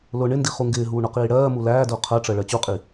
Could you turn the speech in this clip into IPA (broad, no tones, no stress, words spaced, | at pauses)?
lʊ ɳɪndi χuŋɡɪːɦuː ɳʊqiːɽɜːmu læːdʊː qʰɜʈ͡ʂɜ ɭɜt͡ɕuqʼi